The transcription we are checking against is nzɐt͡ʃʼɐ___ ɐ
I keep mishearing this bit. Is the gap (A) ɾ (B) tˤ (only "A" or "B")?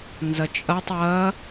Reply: B